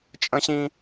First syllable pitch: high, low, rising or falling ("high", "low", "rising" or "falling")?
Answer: low